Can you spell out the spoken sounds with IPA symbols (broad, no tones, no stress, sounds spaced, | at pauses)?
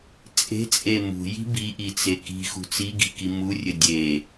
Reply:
t͡sʼ e̤ t͡sʼ e m ṳ j i̤ b i ʔ i t͡s e k i̤ x ṳ t͡s i ɡ i̤ k i m u rʲ ɘ dʲ e